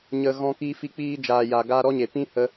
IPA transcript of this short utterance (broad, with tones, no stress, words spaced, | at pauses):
ɲə˨ ɣɔ̃˧kiː˧fi˧ k͡piː˧d͡ʒaː˨ja˨ ɡaː˧ɾɔ˦ɲe˨ pĩ˦hə˧